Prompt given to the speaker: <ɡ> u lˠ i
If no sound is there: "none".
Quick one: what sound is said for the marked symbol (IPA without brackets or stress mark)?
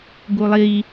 ɡ